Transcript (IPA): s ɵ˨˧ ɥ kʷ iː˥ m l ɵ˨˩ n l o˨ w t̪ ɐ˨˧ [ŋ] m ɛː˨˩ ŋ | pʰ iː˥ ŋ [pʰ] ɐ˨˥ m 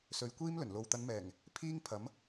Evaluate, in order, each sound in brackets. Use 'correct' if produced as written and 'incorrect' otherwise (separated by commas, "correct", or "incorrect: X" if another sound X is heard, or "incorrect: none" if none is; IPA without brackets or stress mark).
incorrect: n, correct